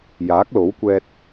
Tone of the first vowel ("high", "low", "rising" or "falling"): rising